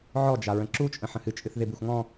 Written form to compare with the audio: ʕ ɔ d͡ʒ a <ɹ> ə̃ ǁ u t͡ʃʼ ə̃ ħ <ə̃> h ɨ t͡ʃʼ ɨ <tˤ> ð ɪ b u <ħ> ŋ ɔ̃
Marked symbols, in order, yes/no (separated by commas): yes, yes, no, no